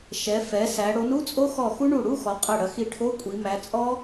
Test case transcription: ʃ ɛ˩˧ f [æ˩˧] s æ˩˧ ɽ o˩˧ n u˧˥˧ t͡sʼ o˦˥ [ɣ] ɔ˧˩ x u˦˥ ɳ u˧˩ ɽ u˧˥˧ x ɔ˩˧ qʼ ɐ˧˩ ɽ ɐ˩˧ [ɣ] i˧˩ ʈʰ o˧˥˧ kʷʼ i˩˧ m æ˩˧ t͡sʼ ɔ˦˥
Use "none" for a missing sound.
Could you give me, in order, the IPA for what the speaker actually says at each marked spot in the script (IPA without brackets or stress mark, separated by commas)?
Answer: ɛ˩˧, x, x